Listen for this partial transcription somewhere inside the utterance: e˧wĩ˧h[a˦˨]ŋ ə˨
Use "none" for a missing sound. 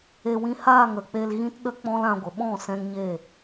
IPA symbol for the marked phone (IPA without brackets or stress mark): aː˦˨